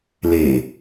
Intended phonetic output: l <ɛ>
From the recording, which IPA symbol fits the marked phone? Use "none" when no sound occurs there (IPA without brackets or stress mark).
e